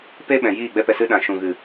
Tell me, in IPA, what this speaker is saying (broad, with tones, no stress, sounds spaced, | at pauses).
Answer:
p e˦ ɓ ɛ̃˨ j iː˦˨ ɡ͡b ɛ˧ p ɛ˨ s ɨ˧ ɗ ã˨ ʃ ũ˨ ɣ ɨ˨